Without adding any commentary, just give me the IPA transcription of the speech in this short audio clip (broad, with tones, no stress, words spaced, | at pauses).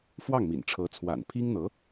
fwɑ˥˩ŋmḭ˨˩nʈ͡ʂʰɤ˧˥ t͡sʰwa̰˨˩npʰi˥ŋn̪ɤ˧˥